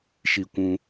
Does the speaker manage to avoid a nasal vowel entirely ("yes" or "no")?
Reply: no